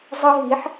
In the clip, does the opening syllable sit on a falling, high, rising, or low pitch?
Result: high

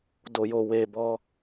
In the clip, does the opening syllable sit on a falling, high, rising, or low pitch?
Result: low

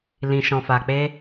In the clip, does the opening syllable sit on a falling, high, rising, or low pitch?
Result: low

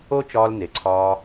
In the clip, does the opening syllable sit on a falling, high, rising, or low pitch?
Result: high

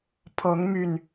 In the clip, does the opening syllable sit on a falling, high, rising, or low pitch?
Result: rising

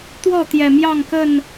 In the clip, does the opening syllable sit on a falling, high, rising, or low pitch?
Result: falling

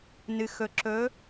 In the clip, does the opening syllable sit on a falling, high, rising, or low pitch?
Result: low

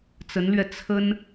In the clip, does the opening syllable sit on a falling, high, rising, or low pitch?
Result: rising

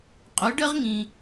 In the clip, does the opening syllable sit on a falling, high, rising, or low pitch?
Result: rising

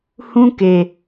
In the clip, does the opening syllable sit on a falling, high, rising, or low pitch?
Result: high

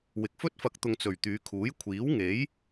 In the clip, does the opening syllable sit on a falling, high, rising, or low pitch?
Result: low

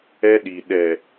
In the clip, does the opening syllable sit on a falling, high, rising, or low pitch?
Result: high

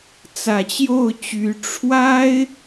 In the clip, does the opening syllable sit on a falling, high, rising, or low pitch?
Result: low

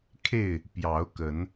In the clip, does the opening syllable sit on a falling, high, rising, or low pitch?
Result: falling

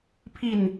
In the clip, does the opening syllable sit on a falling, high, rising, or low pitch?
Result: falling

